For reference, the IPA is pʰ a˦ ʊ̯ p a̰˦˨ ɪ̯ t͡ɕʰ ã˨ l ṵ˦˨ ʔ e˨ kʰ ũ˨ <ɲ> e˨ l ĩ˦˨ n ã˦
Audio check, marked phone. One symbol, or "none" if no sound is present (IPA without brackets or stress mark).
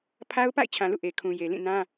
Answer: j